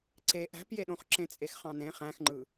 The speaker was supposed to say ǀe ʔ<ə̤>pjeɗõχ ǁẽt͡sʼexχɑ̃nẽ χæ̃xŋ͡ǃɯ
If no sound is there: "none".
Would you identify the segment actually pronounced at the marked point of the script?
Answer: æ̤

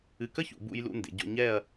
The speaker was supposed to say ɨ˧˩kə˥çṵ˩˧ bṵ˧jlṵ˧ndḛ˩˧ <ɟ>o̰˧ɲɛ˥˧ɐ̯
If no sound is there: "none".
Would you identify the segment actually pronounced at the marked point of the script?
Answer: ɟ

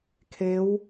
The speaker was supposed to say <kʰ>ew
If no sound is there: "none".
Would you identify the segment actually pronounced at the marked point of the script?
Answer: kʰ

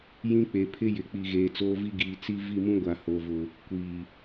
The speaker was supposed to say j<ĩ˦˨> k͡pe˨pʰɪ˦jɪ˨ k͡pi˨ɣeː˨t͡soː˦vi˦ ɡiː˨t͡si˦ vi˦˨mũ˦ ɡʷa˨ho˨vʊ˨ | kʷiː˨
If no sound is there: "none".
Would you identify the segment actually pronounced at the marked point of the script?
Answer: ĩ˦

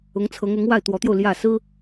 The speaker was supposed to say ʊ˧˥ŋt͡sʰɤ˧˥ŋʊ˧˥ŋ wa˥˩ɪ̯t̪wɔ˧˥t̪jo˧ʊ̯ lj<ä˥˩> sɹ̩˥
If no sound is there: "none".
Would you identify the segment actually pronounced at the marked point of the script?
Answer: ä˥˩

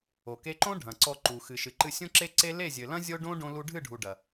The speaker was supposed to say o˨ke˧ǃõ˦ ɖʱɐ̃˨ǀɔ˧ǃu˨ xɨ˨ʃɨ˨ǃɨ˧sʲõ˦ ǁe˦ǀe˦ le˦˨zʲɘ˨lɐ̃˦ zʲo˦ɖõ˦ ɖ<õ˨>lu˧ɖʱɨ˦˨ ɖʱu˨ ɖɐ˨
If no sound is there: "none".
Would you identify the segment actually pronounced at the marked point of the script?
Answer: õ˧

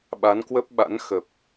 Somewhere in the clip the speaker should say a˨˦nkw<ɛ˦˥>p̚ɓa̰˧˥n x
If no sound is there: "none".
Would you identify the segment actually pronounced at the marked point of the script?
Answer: ə˦˥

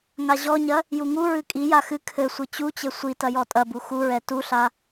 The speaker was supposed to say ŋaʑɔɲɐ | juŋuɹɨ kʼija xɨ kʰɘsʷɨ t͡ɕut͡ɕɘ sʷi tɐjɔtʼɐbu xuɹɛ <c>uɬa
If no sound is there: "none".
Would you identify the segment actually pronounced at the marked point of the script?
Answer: t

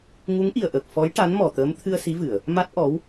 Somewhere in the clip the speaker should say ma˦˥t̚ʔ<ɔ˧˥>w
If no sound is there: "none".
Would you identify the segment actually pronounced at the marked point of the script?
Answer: ɔ˧˥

